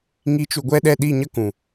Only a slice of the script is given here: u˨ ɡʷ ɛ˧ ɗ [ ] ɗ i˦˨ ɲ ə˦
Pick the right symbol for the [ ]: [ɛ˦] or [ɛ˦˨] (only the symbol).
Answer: ɛ˦˨